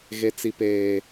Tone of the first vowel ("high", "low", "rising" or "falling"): high